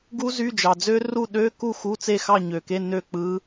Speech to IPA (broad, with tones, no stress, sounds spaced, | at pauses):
ɡ u˦˥ z y˧˥˧ d͡ʒ ɑ˨ d͡z ø˦˥ r u˥˨ ɗ ø˧˥˧ k u˥˨ x u˧˥˧ t͡s e˥˨ x ɑ˥˨ ɲ ø˨ k e˧˥˧ n ø˥˨ k͡p ɯ˦˥